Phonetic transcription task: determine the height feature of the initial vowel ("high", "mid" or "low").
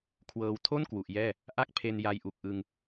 mid